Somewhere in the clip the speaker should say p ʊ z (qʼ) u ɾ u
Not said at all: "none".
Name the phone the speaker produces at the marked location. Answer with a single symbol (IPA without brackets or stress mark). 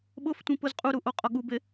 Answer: qʼ